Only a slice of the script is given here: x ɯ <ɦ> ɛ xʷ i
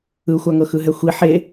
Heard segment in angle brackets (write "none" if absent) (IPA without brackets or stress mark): ɦ